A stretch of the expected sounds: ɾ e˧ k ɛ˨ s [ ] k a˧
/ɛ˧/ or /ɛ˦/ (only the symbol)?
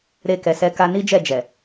ɛ˧